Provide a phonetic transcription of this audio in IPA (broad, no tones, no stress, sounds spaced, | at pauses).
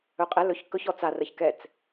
ɵ qʼ ɛ l ɵ ç k ɵ ç ɔ t͡s a r ə ç k ɛ t͡s